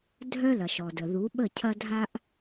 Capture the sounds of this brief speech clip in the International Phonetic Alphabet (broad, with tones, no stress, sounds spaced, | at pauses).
dʱ œ˦ l ɐ˨ ʃ ɔ˨ d ə˨ ð u˨˦ ɓ ə˦˨ cʰ ɐ˦ dʱ a˦ ʔ